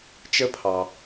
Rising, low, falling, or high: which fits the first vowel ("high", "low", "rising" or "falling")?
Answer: high